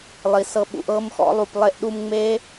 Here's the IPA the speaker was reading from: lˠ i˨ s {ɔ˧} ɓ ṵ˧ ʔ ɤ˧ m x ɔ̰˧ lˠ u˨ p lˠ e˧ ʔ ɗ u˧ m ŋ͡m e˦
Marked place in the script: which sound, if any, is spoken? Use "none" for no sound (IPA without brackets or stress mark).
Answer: ɤ˧